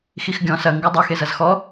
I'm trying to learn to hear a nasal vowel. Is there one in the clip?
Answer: yes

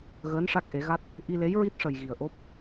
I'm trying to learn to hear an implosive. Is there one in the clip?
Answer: no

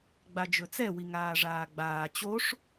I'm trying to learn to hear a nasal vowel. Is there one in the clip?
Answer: no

